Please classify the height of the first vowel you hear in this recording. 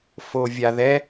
mid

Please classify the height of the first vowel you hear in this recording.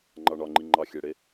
low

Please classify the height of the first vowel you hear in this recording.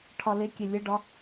low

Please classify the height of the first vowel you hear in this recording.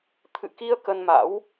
high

